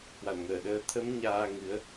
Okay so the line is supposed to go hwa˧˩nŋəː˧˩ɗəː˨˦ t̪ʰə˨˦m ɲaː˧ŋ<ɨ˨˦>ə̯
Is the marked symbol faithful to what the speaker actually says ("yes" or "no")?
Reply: yes